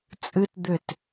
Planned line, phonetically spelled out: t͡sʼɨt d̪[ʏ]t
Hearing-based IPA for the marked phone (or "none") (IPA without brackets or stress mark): ʏ